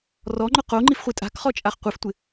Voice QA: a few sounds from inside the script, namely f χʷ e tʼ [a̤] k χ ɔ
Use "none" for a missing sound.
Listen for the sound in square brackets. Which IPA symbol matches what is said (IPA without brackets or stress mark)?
a̤